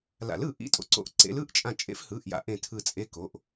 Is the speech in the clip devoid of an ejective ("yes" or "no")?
no